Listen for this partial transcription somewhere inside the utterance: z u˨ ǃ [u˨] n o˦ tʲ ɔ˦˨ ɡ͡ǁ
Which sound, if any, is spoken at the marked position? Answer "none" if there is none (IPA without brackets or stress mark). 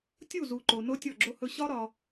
o˨